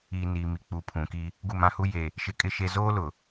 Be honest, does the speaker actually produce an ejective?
yes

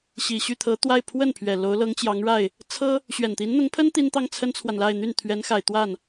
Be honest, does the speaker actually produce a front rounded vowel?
yes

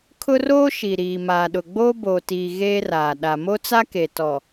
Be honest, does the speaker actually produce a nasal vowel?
no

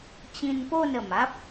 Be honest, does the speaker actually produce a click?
no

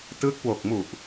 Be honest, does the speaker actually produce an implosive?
no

